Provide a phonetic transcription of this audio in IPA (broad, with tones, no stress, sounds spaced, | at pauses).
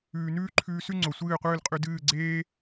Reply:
ʉː˨ n ʉː˦ ǃʰ ʉː˧ s ʉ˦ ŋ͡ǀ o˨ sʷ ɨː˦˨ qʷ ɨː˦˨ l qʼ ʉ˧ d ɨː˦˨ ɡ͡ǀ eː˦